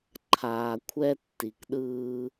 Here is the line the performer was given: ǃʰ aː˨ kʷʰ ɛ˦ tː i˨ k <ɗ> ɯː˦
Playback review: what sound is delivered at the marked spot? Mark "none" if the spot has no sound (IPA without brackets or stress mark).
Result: ɗ